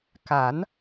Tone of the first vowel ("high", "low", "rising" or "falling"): rising